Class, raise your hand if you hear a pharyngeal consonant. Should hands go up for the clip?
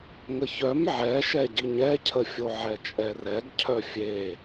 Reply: yes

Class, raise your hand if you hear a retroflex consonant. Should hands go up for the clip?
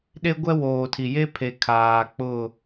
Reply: no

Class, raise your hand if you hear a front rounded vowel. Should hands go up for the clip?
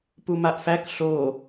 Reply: no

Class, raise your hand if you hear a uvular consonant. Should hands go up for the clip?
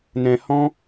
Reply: no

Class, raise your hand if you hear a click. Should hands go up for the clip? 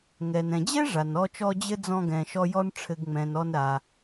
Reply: no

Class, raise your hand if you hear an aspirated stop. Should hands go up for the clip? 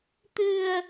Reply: no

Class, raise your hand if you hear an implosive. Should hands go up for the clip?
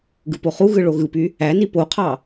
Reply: no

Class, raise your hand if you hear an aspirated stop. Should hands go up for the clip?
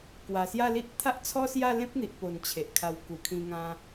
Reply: yes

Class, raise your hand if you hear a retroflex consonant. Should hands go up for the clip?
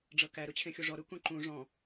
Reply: yes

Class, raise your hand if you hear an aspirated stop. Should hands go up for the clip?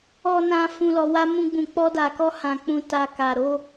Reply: no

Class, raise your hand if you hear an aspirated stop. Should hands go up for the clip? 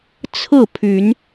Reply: yes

